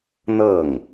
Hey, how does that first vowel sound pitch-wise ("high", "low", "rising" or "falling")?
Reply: falling